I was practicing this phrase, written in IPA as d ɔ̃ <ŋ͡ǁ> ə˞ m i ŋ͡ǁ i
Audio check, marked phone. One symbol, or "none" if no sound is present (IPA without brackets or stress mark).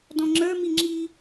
ŋ͡ǁ